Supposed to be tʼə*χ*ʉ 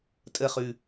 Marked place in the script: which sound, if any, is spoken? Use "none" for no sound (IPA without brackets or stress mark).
χ